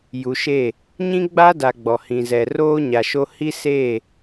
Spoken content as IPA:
ju˨ʃe˦˨ | ɲĩ˦ɡ͡ba˦da˨ ɡ͡bɔ˨hĩ˨zɛ˨ roː˦ɲa˨ʃo˦ hi˦seː˦˨

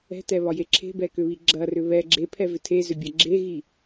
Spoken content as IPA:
ɛ̤tɛβɒje ǁʰe̤bɛkʏβi ɡ͡ǁɐrʏ βɛ ɡ͡ǁepʰɛvʏ tʰezʏbʲɐ ɡ͡ǁeɣi

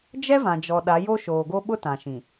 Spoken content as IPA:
d͡ʒɛ˦vã˨d͡ʒɔ˨ ɗa˨˦jo˦ʃoː˨ɡo˦ ɓʊ˦tã˨ʃĩ˨

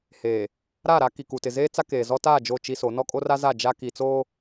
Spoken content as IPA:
heː˨ | ɾa˦˨ɾa˦ ki˨ku˨tɪ˨zeː˦ t͡sa˦keː˨zɔ˦ ta˦˨ d͡ʒo˦˨t͡ʃi˦so˨˦ nɔ˦kʼo˦ra˦za˦˨ d͡ʒa˦ ki˨t͡soː˦

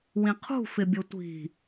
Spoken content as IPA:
wĩqʰṳ fɪbʲʊtʷi̤

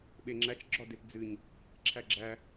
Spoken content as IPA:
ɓeŋ͡ǁæt͡ʃ ɡ͡ǁɒdepd͡zɨɲ | ǁʰæɡ͡ǁæ

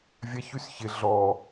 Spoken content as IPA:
vʲaçysçɪ ɮɔ

